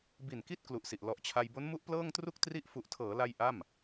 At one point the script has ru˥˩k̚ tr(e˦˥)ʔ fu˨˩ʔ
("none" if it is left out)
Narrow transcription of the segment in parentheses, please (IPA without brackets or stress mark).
i˦˥